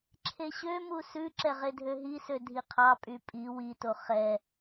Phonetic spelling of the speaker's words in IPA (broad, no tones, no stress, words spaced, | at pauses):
ǁʰeɕømu sʉǁɛ ʁedʱøɦisø dʱiqʰɑpʼy pʼi wito χɛ